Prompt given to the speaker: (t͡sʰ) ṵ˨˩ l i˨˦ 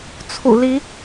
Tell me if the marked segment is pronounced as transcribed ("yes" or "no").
yes